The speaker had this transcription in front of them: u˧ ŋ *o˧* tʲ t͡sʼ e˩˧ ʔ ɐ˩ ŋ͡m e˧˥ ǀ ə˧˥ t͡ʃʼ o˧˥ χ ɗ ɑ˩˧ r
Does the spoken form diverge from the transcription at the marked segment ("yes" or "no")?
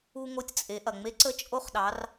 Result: no